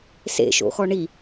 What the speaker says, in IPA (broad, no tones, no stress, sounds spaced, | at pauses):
s ḛ ʃ o̰ x ɔ ɳ i